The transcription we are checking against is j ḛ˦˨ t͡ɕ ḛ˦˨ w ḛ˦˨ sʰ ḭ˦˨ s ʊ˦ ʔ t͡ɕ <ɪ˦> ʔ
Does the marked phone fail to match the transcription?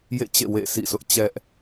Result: yes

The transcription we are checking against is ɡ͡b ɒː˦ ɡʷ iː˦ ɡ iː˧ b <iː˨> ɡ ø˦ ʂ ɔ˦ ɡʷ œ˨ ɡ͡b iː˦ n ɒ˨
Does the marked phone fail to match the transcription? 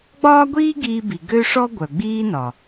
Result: yes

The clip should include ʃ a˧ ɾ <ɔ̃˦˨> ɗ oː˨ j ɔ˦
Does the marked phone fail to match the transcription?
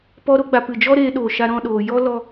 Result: no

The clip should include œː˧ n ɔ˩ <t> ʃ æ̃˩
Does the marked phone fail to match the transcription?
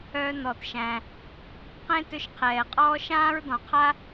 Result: no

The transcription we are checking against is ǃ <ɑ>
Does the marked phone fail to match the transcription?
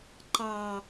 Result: no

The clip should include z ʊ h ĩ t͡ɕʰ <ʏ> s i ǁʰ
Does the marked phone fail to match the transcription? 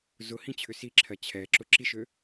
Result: no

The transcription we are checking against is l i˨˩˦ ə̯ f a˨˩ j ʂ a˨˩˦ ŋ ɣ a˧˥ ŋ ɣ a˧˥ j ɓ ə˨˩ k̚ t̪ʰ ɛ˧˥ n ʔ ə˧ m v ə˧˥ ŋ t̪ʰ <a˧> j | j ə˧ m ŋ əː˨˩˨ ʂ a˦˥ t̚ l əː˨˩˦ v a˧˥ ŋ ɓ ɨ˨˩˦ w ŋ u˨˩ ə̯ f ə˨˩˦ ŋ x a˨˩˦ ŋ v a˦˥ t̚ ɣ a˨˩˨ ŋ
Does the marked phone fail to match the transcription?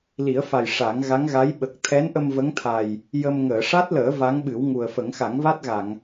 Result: yes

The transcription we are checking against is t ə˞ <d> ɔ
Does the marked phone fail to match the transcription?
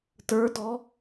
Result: no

